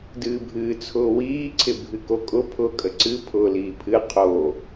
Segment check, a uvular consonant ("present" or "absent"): present